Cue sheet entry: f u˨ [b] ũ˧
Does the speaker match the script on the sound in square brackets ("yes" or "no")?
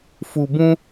yes